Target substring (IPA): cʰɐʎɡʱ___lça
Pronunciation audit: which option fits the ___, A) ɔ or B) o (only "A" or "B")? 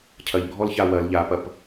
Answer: A